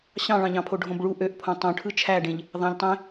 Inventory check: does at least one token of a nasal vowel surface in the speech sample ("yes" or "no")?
yes